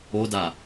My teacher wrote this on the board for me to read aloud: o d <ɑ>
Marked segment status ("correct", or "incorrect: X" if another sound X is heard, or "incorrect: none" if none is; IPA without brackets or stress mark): incorrect: a